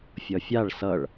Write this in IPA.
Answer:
fʲ ʌ fʲ a ɭ s ʌ ɭ

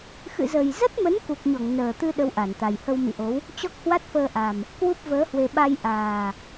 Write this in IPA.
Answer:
x ɨ̰˧˨ z ə˨˩ j z ə˦˥ t̚ m ə˨˦ n k u˨˩ k̚ ɲ ɔ˧˩ ŋ n əː˨˩ t̪ ɨ˧ ɗ ə˧ w ʔ a˧˩ n t̪ a˨˩ j h ə˧ w m ḭ˧˨ ʔ o˨˦ w | t͡ɕ ɔ˦˥ k̚ h w a˦˥ t̚ f əː˧ ʔ a˨˩ m | k w u˦˥ p̚ v əː˨˦ h w e˧ ɓ a˧ j ʔ aː˨˩

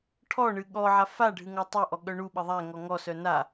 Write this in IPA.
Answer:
ʈʰ ɔ ɳ ɨ ɠ ɔ ʕ a f a ɖʱ ɨ ŋ ɔ tˤ ɛ ʔ ɔ ɠ œ ɳ u ɓ ə ðˤ æ ŋ ɔ ŋ ɔ s œ n a

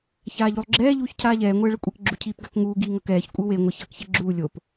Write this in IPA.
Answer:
ç aː ʎ u lˠ ɡ͡ǁ ɛː ʎ uː ç cʰ aː ʎ ɛː ŋʷ ɛː ɭ ʌ kʷʼ ɛ k ɡ͡ǁ u cʰ iː p ɡ a k ŋ uː ɡ iː ŋ ʌ k ɛː ç kʷʼ ɯ w e ŋʷ ɛ ç ʌː k ç e ɡ͡ǁ uː lʲ o p

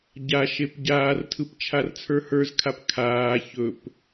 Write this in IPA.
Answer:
ɟ a ʃ e p ɟ aː r tʰ ɯ p t͡ʃʰ a r t͡sʰ ə˞ h ə˞ z kʰ a p kʰ aː ç ɵ p

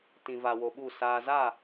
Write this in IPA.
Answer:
t ĩ˨ v a˨ w o˨ ɓ u˦˨ s aː˨ z a˦˨

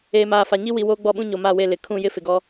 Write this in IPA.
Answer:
eː˨ m aː˨ f a˨ ɲ i˦ w i˨ w oː˦ ɡ͡b ɔ˦˨ ɓ ũ˦ ɲ o˨ m a˦˨ w e˦˨ l ɪ˨ kʰ ũ˦˨ j ɪ˦ f ɪ˨ ɡ ɔ˦

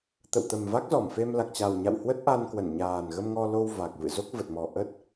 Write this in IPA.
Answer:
t̪ ə̰˧˨ w t̪ ə˨˩ m v a˦˥ k̚ z ɔ˧˩ m f e˧ m l a˨˩ k̚ t͡ɕ a˨˩ w ɲ a̰˧˨ w h w ə˦˥ t̚ ʔ a˧ n k w ə˧˩ n ɲ aː˨˩ n ɣ ə˧ m ŋ ɔ˧ l o˧ w v a˨˩ k̚ v ɨ̰˧˨ z o˦˥ k̚ v ə˨˩ t̚ m ɔ˨˩ ʔ ə˦˥ t̚

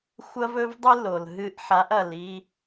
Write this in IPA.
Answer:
xʷ ɐ˦ v ɵ˦ v dˤ ɨ˦ l o˨ l ɦ ɨ˧ ʔ ħ a˨˦ ʔ ɐ˨ l i˧

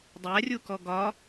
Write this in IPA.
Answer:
dˤ æ rʲ u k ɔ ɡ ɒ

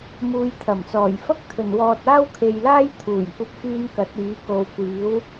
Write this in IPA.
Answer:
m uː˧ j t̪ʰ ɐ˨˩ m t͡s ɔː˨˩ j f ɐ˥ k̚ t̪ʰ ɵ˨˩ n w ɔː˨ t̚ aː˥ w kʰ e˨ j l aː˥ j t̪ʰ uː˨˩ j kʷ ɐ˧ p̚ f yː˧ n k ɐ˨˥ t̚ iː˨˥ k o˨ w kʷ iː˨˥ w

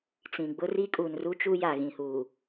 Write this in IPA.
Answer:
t͡s ĩ˨ ɡ͡b ʊ˦ r i˦ kʼ u˨ n r u˦ t͡ʃ u˦ j a˨ ɣ ĩ˨ h uː˨

